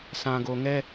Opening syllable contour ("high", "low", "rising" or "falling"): low